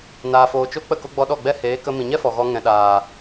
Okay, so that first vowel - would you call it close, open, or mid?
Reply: open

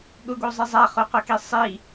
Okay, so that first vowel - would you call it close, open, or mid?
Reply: close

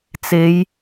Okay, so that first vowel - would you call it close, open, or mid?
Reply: mid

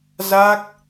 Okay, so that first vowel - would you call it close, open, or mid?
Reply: open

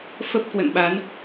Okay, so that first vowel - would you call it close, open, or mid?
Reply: mid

